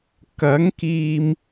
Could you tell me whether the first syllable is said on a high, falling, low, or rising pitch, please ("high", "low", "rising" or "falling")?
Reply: rising